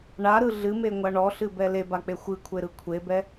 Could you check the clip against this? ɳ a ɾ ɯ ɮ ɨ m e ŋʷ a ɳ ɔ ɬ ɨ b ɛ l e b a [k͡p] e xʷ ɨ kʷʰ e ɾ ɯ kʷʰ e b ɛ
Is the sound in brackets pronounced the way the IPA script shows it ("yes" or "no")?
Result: yes